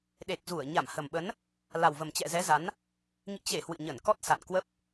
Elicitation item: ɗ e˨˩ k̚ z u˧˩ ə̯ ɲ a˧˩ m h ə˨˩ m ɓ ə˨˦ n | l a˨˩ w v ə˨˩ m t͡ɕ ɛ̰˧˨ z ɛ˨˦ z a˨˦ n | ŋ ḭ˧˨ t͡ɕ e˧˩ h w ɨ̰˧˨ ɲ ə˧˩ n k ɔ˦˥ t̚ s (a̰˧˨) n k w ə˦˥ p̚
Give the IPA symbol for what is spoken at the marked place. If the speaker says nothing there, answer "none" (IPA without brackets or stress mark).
a̰˧˨